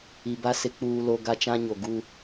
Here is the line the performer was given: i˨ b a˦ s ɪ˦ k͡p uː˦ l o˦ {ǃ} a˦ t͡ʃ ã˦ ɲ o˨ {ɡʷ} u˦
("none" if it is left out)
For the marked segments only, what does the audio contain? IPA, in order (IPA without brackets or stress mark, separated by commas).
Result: ɡ, ɡ